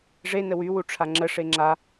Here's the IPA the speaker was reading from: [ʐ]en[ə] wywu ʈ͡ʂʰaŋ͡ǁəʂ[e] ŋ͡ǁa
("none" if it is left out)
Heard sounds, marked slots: ʐ, ə, e

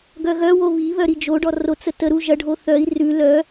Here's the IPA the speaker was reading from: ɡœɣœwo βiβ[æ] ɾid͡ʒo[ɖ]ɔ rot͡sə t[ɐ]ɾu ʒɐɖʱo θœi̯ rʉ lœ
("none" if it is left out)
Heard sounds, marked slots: œ, ɖ, ə

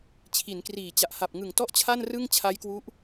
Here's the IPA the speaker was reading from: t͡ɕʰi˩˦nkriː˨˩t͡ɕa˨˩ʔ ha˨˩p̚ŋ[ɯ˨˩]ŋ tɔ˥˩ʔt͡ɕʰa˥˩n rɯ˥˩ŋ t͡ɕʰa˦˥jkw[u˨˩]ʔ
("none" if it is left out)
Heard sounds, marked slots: ɯ˨˩, u˦˥

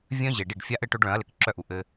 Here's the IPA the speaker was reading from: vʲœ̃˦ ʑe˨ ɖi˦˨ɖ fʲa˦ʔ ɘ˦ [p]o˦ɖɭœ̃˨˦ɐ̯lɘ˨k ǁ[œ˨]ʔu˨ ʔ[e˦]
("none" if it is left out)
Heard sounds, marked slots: ʈ, œ˦, ɘ˦

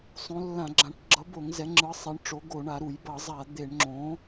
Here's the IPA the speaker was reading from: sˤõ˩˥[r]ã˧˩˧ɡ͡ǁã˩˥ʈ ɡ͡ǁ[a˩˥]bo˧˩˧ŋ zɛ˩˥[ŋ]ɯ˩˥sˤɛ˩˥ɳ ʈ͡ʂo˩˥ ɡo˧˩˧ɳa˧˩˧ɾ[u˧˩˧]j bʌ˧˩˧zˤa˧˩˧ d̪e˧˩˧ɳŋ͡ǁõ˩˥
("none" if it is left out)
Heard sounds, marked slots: lː, ʌ˩˥, ŋ͡ǁ, u˧˩˧

